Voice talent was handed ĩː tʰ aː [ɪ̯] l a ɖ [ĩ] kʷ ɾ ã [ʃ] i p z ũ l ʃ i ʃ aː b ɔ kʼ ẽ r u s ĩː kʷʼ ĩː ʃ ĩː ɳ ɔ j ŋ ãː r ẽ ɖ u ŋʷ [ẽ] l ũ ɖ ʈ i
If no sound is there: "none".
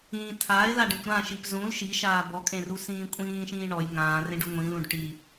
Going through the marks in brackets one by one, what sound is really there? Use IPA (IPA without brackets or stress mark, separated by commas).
ɪ̯, ẽ, ʃ, ĩ